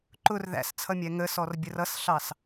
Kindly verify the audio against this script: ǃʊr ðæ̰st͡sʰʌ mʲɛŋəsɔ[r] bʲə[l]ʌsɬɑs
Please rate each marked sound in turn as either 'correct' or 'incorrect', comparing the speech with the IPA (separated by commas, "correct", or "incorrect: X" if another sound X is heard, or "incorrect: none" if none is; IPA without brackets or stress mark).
correct, incorrect: r